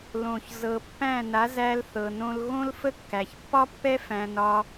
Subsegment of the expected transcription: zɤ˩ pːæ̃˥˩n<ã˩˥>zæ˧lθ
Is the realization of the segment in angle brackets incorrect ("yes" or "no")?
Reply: yes